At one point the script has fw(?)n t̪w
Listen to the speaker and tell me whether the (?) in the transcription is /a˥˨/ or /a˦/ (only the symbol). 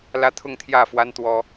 a˦